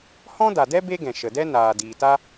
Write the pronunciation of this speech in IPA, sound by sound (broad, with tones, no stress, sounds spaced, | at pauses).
h ɔ̃˦ d a˨ d ɛ˦ b e˦ ɡ ɛ̃˨ ʃ ə˨ d ɛ˦ n aː˨ d iː˨ t a˦